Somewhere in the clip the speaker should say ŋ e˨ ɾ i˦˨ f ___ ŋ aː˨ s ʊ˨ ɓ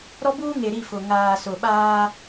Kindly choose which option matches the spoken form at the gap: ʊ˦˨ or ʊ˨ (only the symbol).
ʊ˨